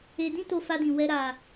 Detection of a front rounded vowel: absent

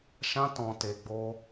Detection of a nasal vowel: present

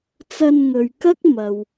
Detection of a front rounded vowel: absent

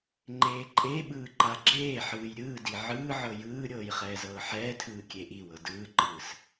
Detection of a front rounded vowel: absent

